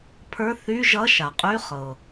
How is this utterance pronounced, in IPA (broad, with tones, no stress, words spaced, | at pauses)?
pʰə˞˧˥˧ θy˧˥˧ʒʌ˧˥˧ ʃa˩qʼy˧˥˧χɤ˩